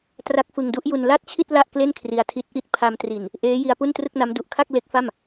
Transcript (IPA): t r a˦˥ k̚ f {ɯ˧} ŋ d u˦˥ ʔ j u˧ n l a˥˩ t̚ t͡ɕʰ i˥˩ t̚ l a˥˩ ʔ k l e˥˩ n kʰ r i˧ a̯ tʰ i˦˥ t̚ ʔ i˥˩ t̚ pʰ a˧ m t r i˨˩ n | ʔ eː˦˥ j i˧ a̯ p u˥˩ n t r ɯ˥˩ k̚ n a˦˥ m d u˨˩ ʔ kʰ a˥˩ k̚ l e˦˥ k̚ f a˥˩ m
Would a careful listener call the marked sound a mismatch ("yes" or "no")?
no